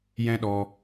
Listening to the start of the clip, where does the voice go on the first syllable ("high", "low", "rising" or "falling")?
high